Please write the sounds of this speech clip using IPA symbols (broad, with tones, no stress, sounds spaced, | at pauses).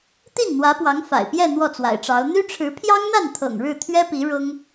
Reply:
t̪ i˥˩ n n̪ w ä˧˥ p w ɑ˧˥ ŋ f a̰˨˩ ɪ̯ p j ɛ˥˧ n̪ w ɔ˥˩ t͡s w a̰˨˩ ɪ̯ ʈ͡ʂ ɑ˧˥ ʊ̯ n̪ y˥ ʈ͡ʂʰ ɻ̩˧˥ pʰ j ɑ˥ ŋ n̪ a˥˩ n t̪ʰ ɤ̰˨˩ ŋ ɻ ɻ̩˥˩ t̪ʰ ɥ ɛ˥ p i˧˥ ɻ ʊ˥ ŋ